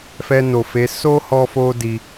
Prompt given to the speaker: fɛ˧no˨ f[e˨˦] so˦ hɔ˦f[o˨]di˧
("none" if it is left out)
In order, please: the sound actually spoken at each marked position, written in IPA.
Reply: e˨˦, o˦

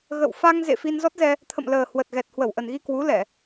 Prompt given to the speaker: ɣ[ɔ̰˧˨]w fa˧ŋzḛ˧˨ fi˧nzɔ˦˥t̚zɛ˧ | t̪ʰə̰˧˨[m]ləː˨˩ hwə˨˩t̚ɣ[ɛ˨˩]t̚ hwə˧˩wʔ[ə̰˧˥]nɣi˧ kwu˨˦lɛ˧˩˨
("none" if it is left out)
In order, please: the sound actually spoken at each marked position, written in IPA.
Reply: ə̰˧˨, m, ɛ˨˩, ə˨˩

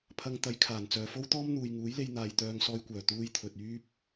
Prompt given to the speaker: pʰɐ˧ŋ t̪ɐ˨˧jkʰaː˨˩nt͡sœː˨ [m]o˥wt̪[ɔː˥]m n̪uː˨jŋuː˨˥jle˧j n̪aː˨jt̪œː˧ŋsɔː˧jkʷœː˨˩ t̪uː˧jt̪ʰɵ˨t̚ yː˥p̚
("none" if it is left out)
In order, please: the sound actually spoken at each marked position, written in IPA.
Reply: f, ɔː˥

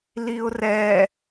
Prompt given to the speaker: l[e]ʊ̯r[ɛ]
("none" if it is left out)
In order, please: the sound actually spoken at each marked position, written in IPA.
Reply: i, ɛ

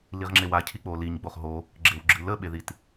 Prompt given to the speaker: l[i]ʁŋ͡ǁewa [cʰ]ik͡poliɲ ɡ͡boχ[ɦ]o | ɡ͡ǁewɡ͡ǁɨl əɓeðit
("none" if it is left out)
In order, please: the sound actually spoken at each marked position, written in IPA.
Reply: i, cʰ, ɦ

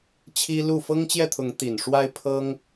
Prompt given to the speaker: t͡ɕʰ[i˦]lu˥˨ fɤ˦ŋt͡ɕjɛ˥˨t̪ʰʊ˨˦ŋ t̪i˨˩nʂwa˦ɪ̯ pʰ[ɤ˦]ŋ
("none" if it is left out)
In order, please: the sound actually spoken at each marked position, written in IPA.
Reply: i˦, ɤ˦

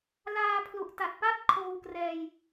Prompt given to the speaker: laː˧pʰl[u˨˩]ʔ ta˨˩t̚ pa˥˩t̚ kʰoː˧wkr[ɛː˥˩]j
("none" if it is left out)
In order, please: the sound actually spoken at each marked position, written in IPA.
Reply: u˨˩, ɛː˧

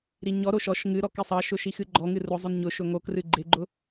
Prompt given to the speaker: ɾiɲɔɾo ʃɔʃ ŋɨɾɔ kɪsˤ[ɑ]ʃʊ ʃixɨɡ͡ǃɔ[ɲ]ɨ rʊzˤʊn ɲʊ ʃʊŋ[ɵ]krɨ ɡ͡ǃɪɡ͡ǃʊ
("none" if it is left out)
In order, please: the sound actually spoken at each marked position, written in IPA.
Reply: ɑ, ŋ, o

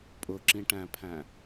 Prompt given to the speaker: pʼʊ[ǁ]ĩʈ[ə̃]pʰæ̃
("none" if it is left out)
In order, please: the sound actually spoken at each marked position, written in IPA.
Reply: ǁ, æ̃

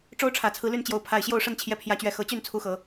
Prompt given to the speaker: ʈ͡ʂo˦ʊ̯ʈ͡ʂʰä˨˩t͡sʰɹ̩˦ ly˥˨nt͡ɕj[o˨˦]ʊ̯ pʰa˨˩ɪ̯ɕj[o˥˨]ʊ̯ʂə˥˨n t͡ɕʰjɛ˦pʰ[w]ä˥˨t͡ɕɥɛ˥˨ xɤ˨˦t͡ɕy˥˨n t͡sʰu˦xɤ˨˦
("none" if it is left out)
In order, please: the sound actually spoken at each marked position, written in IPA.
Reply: o˨˦, o˥˨, j

